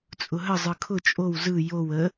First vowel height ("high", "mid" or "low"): high